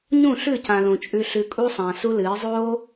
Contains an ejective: yes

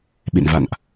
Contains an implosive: yes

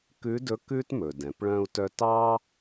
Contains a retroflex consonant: yes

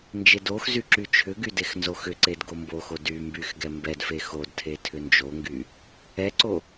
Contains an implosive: no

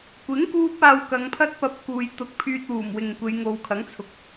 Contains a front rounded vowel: yes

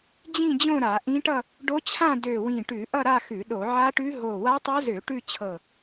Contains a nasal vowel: yes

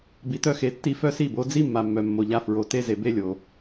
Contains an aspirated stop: no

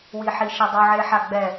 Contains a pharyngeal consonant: yes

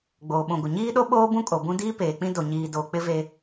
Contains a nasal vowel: yes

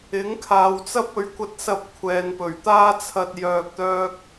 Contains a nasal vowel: no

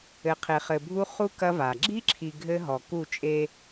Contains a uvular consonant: yes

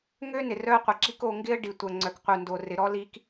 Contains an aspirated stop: no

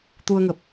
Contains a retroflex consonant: no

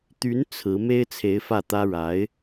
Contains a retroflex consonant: yes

